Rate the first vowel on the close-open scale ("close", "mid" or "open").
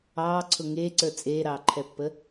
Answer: open